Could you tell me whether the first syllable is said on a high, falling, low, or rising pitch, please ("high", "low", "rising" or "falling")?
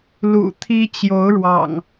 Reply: low